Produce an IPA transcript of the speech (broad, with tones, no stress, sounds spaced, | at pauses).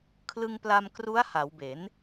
kʰ l ɯ˧ ŋ p l a˧ m k r u˦˥ a̯ h a˩˦ w b e˩˦ n